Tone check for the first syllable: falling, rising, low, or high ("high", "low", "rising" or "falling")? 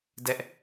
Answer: high